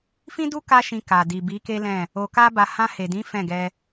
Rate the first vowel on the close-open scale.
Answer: close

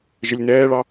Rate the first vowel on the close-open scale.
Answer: mid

